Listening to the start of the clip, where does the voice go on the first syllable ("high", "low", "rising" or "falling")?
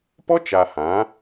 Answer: high